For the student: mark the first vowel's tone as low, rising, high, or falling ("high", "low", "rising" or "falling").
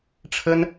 high